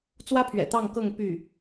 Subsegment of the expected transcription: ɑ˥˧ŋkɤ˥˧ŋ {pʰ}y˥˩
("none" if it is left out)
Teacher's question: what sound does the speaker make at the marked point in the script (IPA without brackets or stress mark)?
p